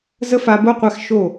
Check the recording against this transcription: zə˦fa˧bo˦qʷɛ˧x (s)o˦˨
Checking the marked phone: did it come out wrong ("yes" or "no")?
yes